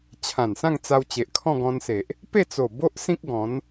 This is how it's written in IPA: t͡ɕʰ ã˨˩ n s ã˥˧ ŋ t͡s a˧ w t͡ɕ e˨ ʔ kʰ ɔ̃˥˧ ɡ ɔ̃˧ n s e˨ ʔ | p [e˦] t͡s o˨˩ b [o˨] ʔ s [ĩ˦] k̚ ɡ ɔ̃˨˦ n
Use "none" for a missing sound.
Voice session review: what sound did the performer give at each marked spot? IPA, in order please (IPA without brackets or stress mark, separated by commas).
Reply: e˥˧, o˦, ĩ˦